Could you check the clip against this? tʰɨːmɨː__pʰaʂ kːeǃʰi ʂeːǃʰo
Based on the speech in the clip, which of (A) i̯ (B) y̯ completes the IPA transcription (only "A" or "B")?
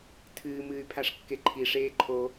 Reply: B